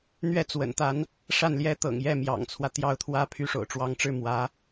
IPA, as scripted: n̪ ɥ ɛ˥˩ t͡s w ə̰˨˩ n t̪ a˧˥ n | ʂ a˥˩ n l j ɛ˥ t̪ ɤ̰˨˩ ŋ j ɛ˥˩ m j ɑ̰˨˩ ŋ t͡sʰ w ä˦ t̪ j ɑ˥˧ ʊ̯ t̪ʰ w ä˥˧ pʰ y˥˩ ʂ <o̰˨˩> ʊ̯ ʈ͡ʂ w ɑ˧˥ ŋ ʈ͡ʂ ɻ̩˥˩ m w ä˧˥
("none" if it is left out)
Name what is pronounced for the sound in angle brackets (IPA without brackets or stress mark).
o̰˨˩